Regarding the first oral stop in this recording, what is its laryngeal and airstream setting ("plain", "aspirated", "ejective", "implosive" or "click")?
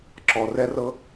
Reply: click